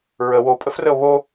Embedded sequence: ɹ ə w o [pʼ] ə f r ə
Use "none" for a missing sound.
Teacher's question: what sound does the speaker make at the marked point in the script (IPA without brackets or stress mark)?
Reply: pʼ